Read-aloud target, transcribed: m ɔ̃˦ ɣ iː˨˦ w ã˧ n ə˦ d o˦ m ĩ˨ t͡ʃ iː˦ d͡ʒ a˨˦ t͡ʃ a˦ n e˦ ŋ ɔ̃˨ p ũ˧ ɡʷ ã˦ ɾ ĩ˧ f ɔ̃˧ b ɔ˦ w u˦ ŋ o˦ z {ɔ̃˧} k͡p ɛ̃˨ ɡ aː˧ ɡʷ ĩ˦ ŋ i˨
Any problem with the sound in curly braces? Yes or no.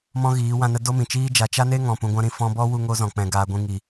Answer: yes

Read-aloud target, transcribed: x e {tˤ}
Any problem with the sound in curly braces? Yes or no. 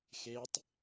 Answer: no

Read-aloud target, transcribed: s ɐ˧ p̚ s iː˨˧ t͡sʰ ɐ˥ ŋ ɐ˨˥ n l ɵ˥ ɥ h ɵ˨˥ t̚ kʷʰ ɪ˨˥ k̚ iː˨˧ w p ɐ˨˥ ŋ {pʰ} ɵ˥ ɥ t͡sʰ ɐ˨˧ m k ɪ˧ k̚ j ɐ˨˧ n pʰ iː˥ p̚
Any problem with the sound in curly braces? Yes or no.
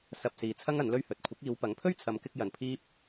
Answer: no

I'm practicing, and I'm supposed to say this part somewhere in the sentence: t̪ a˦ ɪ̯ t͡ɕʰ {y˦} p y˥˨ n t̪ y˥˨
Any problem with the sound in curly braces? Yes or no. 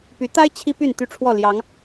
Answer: yes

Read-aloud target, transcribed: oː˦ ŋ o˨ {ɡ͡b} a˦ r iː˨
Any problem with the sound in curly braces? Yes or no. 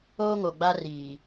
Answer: no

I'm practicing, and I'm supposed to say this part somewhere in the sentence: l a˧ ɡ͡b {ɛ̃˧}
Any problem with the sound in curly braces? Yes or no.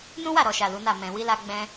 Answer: yes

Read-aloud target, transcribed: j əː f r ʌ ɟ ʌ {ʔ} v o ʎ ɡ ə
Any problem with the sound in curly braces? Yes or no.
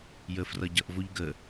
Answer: no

